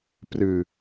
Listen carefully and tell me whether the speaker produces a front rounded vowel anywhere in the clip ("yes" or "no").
no